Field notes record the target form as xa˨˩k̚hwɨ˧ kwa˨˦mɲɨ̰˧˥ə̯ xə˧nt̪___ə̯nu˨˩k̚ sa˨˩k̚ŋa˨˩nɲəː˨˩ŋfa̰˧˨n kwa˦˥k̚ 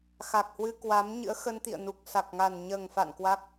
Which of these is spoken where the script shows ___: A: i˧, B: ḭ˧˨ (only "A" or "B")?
B